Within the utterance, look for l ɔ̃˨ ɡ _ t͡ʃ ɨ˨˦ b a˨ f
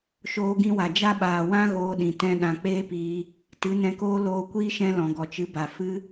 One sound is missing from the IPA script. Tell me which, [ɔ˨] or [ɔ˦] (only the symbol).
ɔ˨